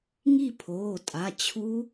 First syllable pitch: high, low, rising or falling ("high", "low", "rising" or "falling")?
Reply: falling